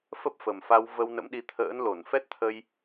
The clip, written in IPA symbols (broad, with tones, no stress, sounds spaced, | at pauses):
f ə˦˥ p̚ f ə˨˩ m f a˧ w v ə˧ w n ə̰˧˥ m ɗ i˨˦ t̪ʰ ə̰ː˧˥ n l o˧˩ n f ɛ˦˥ t̚ t̪ʰ ə˧ j